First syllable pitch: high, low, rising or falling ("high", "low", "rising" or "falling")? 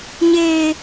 high